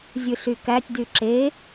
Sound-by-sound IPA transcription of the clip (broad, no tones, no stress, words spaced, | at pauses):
zʲɯɬykætʲ dyǁe